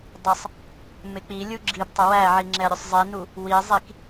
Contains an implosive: no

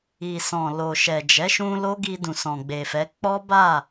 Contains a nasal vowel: yes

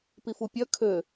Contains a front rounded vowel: yes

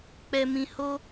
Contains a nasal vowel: yes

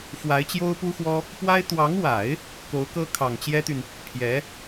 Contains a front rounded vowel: yes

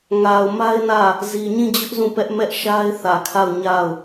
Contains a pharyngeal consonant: no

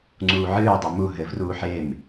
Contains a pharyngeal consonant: yes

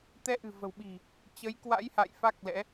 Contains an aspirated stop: no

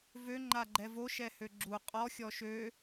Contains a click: yes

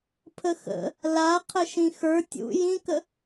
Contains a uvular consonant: yes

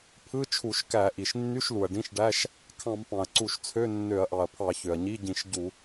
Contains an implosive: no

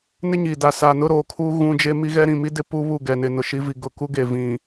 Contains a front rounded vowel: no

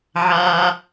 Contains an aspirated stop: no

